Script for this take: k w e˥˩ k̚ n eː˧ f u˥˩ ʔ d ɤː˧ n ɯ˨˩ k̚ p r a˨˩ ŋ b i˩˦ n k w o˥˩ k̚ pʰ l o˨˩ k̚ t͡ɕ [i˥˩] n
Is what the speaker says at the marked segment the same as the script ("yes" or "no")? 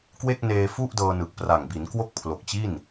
yes